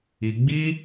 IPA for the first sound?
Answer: i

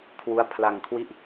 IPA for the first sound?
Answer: kʰ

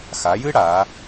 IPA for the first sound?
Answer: x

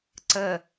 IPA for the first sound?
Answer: ǀ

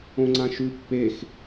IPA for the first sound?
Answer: õ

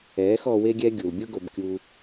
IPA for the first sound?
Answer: ɛː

